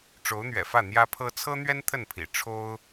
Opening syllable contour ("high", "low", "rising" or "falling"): rising